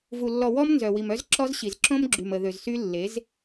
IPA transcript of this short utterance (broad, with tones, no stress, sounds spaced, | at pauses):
v u˨ lː ɔ˨ w ɔ˦ m n z œ˨ w i˨ m œ˦ z ǁ ɔ˦ z ɕ i˨ z ǁ õ˦ m ɡ͡ǁ y˨ m ə˨ ð ø˨ z s y˦ lː e˨˦ z